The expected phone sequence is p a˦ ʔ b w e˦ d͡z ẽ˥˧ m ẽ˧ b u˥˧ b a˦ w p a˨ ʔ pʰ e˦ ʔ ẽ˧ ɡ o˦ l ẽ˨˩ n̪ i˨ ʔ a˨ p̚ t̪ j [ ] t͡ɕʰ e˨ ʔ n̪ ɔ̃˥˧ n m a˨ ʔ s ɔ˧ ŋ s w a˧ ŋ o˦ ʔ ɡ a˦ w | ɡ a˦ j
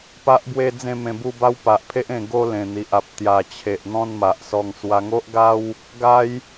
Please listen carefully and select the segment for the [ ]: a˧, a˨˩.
a˨˩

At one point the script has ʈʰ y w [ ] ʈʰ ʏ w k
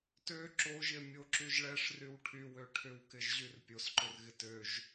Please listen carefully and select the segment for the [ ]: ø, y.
ø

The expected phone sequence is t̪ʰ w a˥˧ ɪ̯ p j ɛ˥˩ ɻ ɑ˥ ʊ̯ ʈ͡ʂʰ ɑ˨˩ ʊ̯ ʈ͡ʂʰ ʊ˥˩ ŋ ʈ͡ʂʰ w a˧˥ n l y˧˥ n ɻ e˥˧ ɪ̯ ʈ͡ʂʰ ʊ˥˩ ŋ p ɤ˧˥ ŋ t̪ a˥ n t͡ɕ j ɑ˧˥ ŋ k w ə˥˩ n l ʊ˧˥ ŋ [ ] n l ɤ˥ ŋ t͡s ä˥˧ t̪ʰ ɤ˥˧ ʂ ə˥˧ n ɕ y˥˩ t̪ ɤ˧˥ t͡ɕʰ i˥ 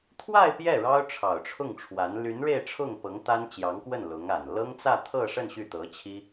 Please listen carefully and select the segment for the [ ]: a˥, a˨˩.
a˨˩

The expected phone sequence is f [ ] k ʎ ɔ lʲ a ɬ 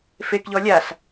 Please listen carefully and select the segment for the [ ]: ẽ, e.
e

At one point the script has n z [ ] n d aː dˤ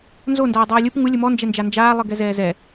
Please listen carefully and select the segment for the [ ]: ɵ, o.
o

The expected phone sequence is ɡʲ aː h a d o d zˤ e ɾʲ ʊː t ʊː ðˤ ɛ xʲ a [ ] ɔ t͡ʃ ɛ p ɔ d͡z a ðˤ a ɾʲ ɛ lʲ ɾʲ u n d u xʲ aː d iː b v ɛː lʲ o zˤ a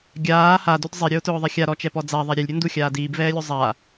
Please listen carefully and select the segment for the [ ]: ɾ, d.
ɾ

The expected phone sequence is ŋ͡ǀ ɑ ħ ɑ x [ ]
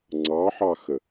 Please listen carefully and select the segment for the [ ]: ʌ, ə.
ə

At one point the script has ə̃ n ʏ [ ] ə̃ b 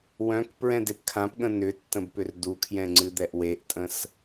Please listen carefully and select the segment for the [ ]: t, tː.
tː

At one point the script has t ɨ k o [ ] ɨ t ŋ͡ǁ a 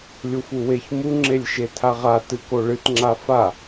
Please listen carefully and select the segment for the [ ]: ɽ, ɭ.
ɭ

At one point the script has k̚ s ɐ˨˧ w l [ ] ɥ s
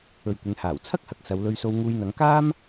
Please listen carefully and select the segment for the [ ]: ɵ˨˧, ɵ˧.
ɵ˧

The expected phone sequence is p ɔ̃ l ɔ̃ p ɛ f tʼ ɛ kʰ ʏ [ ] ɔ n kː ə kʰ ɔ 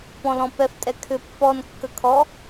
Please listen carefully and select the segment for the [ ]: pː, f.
pː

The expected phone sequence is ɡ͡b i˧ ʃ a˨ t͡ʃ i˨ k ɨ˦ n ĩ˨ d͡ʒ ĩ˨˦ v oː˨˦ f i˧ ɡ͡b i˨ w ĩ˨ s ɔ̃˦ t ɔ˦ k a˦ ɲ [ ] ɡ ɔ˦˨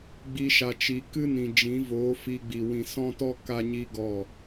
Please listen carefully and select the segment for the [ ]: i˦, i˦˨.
i˦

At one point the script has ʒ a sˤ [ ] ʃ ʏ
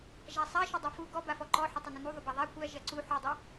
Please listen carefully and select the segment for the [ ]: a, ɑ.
a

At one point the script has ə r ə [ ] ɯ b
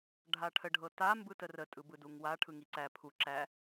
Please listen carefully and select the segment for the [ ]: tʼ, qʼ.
tʼ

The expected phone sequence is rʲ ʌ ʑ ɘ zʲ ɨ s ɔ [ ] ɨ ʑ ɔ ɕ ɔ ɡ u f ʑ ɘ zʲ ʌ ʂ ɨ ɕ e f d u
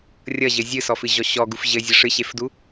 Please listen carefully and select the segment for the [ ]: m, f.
f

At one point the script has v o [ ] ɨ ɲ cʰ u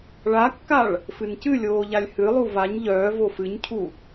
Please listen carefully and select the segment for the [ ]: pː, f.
f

